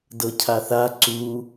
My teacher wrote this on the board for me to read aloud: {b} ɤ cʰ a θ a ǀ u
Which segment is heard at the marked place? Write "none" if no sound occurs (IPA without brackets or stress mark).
d